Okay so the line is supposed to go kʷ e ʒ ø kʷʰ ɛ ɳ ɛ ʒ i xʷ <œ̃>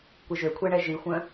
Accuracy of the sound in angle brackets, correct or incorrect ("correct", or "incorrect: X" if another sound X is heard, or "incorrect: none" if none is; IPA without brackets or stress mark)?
correct